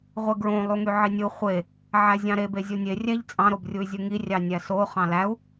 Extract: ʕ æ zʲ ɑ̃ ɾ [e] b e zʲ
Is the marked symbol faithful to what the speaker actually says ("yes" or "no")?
yes